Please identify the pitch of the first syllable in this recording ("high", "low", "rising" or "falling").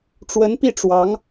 rising